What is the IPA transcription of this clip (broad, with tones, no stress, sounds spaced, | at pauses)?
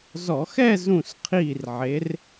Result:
z ɔ˧˩˧ x ɛ˥˨ z ũ˧˩ s qʰ iː˧˩ r ʕ e˨˥ r